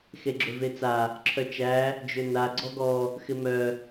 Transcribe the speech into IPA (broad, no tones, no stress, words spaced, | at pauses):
xeɡ͡ǁøvet͡sa | ǁʰœt͡ʃæ | d͡ʒøna ɡ͡ǀɔɡɔ | xɪmœ